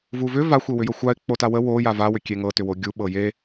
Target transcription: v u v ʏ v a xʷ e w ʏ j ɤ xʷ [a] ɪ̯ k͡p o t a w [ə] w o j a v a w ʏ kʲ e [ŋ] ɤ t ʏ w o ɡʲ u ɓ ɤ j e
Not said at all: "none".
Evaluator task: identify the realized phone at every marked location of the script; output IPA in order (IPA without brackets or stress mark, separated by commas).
a, ə, ŋ